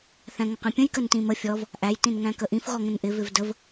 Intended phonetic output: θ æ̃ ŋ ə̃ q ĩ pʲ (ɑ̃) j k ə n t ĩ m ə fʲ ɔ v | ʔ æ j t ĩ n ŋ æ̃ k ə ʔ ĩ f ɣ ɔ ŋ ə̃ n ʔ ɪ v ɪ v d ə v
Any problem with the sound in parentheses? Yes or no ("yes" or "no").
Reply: yes